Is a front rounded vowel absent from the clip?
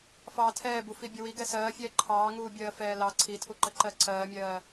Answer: yes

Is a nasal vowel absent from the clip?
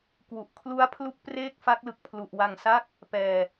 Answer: yes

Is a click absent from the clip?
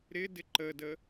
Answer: no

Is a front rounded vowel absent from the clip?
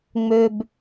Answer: no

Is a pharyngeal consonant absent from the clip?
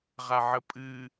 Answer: no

